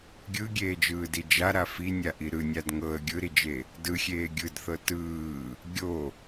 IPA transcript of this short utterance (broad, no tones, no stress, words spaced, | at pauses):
ɡʲɯɡʲeːd͡ʒɯːdi d͡ʒaɾa finʲaʔi ɾɯnʲad ŋɤə̯ ɡʲɯɾid͡ʒe | dɯxʲeː ɡʲɯdθɤ tɯː | ɡʲo